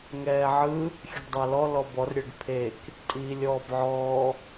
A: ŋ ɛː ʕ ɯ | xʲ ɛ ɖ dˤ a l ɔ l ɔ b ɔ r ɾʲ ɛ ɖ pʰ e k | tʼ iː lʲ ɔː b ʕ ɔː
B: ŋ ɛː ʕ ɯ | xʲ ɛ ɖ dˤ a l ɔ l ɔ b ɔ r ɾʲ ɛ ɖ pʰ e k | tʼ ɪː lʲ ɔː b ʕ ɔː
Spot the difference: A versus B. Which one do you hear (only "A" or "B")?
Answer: A